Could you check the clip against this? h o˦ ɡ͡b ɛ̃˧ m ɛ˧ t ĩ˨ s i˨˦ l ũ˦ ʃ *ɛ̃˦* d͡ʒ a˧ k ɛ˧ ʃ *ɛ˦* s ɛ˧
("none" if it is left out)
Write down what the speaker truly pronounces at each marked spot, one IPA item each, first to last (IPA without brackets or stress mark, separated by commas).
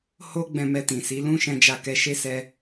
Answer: ɛ̃˧, e˦